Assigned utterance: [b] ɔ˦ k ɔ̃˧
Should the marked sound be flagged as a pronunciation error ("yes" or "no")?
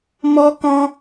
yes